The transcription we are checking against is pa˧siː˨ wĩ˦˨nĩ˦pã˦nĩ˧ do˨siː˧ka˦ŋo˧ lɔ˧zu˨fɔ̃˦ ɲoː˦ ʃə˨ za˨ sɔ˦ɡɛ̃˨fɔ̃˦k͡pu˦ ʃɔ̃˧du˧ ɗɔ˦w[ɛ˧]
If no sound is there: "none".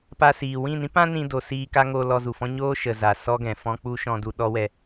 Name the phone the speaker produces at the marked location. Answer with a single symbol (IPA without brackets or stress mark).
ɛ˧